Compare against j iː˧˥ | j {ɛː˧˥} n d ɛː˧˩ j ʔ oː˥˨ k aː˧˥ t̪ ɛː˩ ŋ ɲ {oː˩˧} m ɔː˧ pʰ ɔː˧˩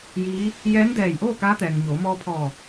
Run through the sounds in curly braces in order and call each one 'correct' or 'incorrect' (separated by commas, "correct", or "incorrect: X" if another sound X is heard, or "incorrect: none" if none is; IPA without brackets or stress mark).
correct, correct